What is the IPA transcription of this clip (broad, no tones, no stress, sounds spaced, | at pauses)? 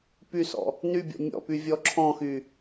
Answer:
p y s ɔ̰ | n y bʲ ɔ̰ mʲ ɔ̰ p y vʲ ɔ ǁʰ ɔ̃ x y